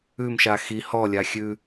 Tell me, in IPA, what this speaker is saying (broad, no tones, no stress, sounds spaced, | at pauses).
ʉ m ʃ a x i h ɔ lʲ a xʲ ʉ